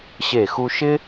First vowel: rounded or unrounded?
unrounded